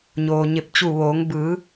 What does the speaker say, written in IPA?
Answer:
ɲ oː˩ ɲ e˧˩ p̚ t͡ɕ u˧˩ ʋ oː˩˧ ŋ b ɯː˩˧

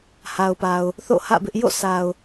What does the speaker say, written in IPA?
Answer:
h a˨ ʊ̯ p a˨ ʊ̯ | θ o̰˦˨ h ä̰˦˨ b ɪ˦ ʔ j o̰˦˨ s a˨ ʊ̯

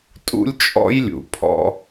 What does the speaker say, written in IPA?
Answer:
tʼ ṵ˦ lʲ t͡ʃʼ ɔ̰˦ j lʲ ṵ˩ pʰ ɔ̰˦

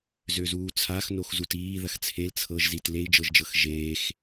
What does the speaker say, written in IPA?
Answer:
z ø z uː t͡sʰ a x n o x z u t iː ð ɐ x t͡sʰ e l t͡sʰ ɤ ʒ z i t l e i̯ d͡ʒ ɤ ʒ d͡ʒ ɤ x ʒ eː x

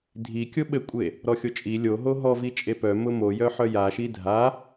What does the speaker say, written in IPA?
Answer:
dʱ i kʲ ʊ ɓ ɘ kʷʼ e | ɾ ɔ xʲ o t͡ʃʼ i lʲ o ɦ o ɦ ɔ v i t͡ʃʼ e p œ m ʊ m o j œ ħ œ j a ʃ i dʱ a

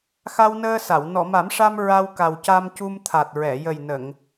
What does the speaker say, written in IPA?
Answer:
x a˧ w n əː˧ s a˨˩˨ w n ɔ˨˩˨ m a˨˩˦ m ʂ a˧ m ɹ a˧ w k a˨˩ w c a˧ m c u˧ m t̪ʰ a˨˩ t̚ ɹ ɛ˨˩˨ j ə˨˩ j n ə˨˩˨ ŋ

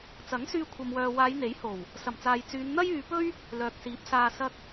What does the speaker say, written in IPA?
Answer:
t͡s ɐ˨˥ ŋ s yː˧ kʷʰ ɐ˧ m w œː˧ w aː˨˧ j n̪ e˨˥ j h o˨˩ w | s ɐ˨˩ m t͡s aː˨ j t͡s yː˨˧ n n̪ ɐ˥ j yː˨˧ p ɵ˥ ɥ | l œː˨ k̚ s iː˨˥ p̚ s aː˨ s ɐ˧ k̚

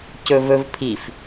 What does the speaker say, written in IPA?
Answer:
c ɵ v ɵ v pʰ i f

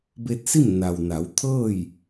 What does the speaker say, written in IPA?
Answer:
b e˧ t̚ s i˥˨ m n a˩ w n a˩˧ w t̪ʰ ɤː˥˨ j

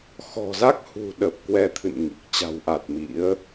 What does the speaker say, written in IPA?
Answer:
x ɔ̤˨˩ z a˦˥ k̚ h ṳ˨˩ ɗ ə˨˩ p̚ k w ɛ˧ t̪ʰ ɨ̰˧˨ n ŋ i˨˩ k̚ t͡ɕ a̤˨˩ w ʔ a˨˩ t̚ m ḭ˧˥ ə̯

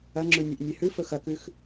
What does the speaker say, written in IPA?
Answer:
ɐ ŋ͡ǁ ʉ nʲ e ʔ nʲ e h ʉ f ɵ x ɐ k ʉ x

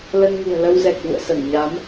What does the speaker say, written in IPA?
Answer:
l ə˧ n ŋ ṳ˨˩ ə̯ l ə˧ w z ɛ˨˩ k̚ v ṵ˧˨ ə̯ s ə˧˩ n ɲ a˨˦ m

